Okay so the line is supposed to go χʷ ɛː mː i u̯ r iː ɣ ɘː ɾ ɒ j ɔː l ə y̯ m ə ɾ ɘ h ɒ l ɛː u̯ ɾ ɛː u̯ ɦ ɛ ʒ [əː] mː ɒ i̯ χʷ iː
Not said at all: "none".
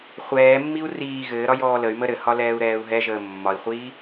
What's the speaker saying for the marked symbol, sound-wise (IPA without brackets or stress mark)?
əː